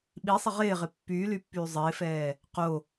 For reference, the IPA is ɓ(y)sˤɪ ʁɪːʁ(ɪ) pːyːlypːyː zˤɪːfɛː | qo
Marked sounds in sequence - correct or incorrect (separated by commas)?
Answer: incorrect, correct